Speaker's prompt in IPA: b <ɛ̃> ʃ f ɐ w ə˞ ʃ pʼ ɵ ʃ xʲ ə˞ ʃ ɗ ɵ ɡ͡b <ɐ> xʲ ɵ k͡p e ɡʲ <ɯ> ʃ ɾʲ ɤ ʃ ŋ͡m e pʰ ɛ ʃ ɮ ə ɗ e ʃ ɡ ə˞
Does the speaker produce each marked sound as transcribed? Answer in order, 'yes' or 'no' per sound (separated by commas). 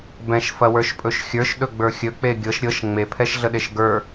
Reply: yes, no, no